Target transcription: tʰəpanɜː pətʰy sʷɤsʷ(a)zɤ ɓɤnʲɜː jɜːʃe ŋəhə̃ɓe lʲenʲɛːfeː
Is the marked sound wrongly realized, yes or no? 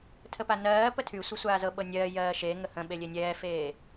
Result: yes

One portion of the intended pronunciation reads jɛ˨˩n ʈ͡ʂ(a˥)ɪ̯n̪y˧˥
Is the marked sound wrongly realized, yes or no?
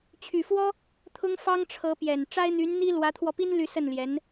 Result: no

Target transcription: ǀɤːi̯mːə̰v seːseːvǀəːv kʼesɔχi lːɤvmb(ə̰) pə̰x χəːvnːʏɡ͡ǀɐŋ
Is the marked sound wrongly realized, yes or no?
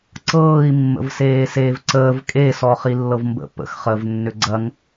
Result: no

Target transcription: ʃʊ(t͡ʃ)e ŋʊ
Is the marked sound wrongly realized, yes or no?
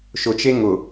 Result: no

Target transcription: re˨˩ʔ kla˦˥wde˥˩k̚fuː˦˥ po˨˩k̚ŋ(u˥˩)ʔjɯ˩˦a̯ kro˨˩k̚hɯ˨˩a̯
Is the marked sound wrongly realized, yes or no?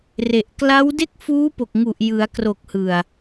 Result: yes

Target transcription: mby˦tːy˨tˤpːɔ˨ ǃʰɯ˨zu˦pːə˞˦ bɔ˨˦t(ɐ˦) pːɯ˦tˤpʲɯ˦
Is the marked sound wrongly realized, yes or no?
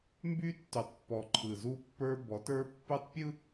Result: yes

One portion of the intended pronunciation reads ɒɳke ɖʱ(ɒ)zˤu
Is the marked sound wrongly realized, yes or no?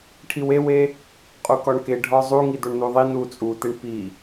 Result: no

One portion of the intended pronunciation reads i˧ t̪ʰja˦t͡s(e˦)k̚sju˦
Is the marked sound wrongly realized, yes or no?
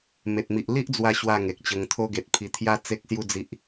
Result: no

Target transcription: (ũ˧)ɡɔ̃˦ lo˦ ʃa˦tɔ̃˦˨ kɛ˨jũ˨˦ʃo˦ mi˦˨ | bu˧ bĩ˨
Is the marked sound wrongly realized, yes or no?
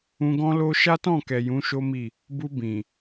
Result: no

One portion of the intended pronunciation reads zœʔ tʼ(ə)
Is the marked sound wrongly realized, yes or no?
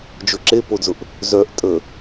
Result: no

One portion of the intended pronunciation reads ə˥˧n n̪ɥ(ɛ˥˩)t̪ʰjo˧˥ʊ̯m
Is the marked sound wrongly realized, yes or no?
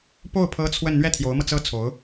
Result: no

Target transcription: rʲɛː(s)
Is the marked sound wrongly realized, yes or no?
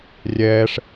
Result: yes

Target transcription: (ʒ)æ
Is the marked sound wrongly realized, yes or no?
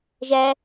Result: no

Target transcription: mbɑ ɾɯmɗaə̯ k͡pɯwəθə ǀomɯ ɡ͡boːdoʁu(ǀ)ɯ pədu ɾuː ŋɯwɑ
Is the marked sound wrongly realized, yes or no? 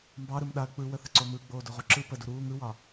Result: yes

